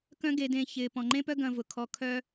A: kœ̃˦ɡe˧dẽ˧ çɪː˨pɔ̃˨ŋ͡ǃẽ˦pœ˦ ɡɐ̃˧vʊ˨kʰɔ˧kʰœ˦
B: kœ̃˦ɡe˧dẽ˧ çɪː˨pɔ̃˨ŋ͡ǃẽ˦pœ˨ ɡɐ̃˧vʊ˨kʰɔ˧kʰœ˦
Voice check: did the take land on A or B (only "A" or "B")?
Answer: A